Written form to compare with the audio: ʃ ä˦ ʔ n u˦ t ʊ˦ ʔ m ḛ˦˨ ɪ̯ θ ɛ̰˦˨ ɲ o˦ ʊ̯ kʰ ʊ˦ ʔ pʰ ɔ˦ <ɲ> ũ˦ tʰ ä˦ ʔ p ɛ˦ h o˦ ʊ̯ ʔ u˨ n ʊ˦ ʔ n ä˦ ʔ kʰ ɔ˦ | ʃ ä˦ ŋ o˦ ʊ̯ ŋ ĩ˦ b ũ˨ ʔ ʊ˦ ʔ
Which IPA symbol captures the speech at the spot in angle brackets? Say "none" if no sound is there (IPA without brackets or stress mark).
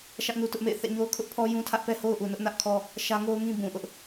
j